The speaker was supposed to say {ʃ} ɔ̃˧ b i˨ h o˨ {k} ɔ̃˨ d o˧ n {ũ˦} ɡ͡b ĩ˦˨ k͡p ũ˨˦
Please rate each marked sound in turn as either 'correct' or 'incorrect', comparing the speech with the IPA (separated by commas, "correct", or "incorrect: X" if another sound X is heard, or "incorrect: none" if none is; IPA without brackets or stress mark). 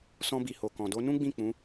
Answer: incorrect: s, correct, correct